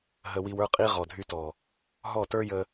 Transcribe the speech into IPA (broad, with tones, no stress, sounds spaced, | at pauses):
ɦ ə˧ w i˧ w ə˞˦ qʼ i˦ ʁ ɔ˨ dʱ y˧ t ɔ˨ | ɦ ɔ˦˨ t ə˞˦ j ə˧